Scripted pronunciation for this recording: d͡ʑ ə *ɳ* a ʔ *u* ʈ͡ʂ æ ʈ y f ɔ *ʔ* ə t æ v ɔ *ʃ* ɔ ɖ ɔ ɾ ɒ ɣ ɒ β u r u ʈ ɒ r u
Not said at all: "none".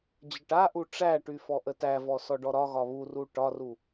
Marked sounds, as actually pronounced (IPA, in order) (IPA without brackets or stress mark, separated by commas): ʈ, u, ʔ, s